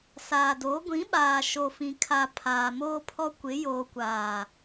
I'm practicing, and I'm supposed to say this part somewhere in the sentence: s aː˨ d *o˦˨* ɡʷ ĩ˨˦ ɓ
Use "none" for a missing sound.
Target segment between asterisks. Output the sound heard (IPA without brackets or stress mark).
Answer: o˨˦